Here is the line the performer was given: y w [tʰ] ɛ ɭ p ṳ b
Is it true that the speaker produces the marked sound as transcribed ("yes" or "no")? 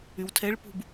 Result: yes